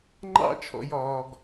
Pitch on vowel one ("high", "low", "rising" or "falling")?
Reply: high